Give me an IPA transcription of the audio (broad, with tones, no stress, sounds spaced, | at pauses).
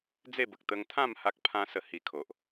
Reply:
d͡z e˥˧ b ə˨ k̚ t̪ ə˧ ŋ t̪ʰ ã˥˧ m h a˦ k̚ pʰ ã˦ s ə˧ h i˧ kʰ o˨ ʔ